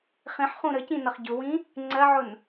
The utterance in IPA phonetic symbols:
χ ĩ ħ χ ũ ɾ ə c ĩ n ʌ χ ɟ ʊ w ĩ | ŋ͡ǀ ɜ ʕ ʊ n

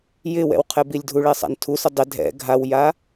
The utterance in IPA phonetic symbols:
j ɪ w ɛ̰ w qʰ ɛ b i lʲ dʱ u ɭ e sˤ a̰ n tʰ u s ʊ dˤ ɪ dʱ ɛ̰ ɡʱ a w j a

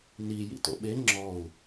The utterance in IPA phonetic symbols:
n i j ḭ t o̰ ɓ e ŋ͡ǁ ɔ u̯

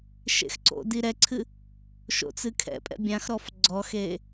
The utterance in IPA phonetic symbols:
ʃ ḛ x ǀ o̰ d i ɾ ɛ ǀʰ ɨ | ʃ o̰ t͡s ɨ kʰ ɛ̰ pʼ ɛ̰ bʲ ã x ɾ ɔ f ɡ͡ǀ ɔ x e

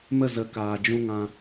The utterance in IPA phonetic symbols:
m ə˦˨ z ə˨˦ k aː˨ d͡ʒ ũ˧ ŋ ã˧

